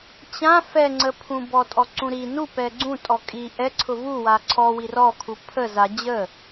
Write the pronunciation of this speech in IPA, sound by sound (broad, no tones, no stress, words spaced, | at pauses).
t͡ɕã fɛŋ͡ǀəpʰũ bɔtʼɔǀũɾi nu pɛɡ͡ǀũ tʼɔkʼi ʔɛǀʰʊ vu waǀʰɔwi rɔkʰu pʰə za d͡ʑə